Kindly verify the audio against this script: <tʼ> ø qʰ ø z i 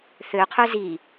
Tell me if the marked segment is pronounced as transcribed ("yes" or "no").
no